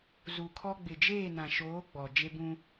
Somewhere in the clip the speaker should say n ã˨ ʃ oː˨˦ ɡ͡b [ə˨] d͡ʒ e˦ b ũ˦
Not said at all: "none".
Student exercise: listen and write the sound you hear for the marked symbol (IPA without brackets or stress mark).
ɔ˨